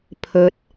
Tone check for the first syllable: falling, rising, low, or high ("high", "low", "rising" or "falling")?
rising